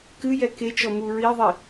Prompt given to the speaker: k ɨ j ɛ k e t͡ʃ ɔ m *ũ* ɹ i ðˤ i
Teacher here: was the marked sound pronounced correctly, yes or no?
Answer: no